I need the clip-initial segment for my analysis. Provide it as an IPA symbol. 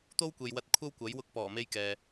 t̪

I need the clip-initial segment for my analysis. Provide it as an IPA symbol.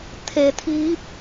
t̪ʰ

